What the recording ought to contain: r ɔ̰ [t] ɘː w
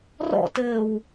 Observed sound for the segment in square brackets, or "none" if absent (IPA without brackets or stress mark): t